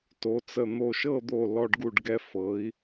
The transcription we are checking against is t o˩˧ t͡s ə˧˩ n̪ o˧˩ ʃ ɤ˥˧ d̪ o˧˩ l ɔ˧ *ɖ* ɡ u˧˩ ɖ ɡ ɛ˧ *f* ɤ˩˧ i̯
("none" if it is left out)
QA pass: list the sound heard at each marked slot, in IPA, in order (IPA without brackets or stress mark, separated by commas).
ɖ, f